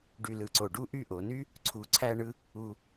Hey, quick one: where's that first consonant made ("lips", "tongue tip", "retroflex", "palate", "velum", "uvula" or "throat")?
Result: retroflex